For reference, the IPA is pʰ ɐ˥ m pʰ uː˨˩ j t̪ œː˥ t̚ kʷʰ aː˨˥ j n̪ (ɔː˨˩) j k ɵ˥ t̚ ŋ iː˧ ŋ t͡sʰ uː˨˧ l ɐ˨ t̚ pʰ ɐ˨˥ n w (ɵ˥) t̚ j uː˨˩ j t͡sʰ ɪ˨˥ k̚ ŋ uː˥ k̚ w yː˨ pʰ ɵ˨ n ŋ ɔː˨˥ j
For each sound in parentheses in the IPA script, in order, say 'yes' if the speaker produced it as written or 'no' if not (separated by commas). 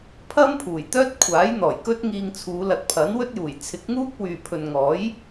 yes, yes